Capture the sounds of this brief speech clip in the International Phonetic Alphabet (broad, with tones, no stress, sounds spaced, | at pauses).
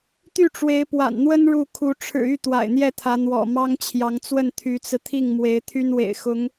t̪ y˥˩ ʈ͡ʂ w e˧˥ ɪ̯ p w a̰˨˩ n n̪ w ə˥ n ɻ u˥˩ kʰ u˧˥ ʈ͡ʂʰ ɻ̩˨˩ y˥˩ t̪ w a̰˨˩ ɪ̯ n̪ j ɛ˥˩ t̪ʰ ä˧˥ n̪ w ɔ̰˨˩ m ɑ˥ ŋ t͡ɕʰ j ɑ˧˥ ŋ t͡s w ə˥˩ n t̪ʰ y˧˥ t͡s ɹ̩˧ t̪ʰ i˥˩ ŋ m w e˧˥ ɪ̯ t̪ʰ y˥ n w ḛ˨˩ ɪ̯ x ʊ˧˥ ŋ